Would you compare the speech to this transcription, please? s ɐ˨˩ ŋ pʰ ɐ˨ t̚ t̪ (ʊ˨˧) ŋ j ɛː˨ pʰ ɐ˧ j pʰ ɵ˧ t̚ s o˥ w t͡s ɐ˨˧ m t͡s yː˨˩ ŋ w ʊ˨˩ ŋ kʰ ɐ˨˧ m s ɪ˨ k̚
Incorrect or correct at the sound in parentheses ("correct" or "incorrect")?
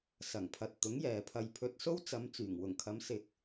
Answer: incorrect